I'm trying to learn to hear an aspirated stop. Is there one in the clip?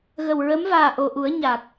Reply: no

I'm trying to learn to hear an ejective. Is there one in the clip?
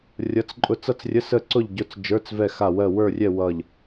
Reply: yes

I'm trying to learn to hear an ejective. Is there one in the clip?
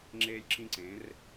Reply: no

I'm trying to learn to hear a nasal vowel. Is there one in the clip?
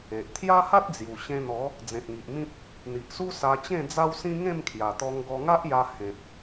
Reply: yes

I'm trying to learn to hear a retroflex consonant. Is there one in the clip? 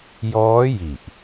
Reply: no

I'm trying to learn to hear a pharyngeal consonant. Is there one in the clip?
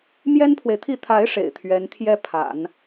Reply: no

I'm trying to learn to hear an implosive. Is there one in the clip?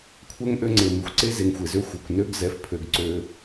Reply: no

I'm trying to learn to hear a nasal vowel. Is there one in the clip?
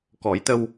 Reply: no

